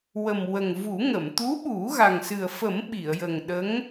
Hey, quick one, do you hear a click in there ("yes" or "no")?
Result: no